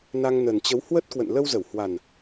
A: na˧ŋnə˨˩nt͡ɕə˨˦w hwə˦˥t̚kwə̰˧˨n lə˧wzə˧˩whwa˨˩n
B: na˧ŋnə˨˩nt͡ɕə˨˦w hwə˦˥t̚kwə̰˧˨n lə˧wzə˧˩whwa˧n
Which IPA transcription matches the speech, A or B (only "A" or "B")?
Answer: A